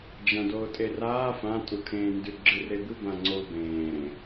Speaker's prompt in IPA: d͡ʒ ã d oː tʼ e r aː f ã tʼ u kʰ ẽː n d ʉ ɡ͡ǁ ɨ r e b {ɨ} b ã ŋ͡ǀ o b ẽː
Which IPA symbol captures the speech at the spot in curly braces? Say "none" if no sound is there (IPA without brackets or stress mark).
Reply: ɨ